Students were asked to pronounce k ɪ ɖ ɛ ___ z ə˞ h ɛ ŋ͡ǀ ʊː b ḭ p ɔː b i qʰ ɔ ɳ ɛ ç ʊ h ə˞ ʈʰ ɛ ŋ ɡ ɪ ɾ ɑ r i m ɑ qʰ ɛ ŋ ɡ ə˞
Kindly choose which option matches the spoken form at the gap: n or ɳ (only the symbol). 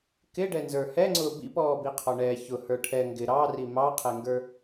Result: n